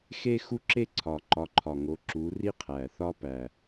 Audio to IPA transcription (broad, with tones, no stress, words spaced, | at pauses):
xe˥xu˥ǁe˥ ǀʰɒ˨˩ǃɒ˨˦ǃʰɒ˨˩ŋo˨˦ ǁu˨˦ ri˥qʰæ˨˩θɒ˥pæ˨˩